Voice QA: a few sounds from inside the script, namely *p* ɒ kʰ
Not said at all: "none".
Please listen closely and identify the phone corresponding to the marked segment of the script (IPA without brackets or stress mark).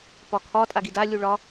p